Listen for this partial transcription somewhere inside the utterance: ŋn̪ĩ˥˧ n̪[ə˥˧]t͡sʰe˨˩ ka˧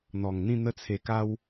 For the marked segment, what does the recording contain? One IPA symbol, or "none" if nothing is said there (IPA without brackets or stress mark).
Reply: ə˧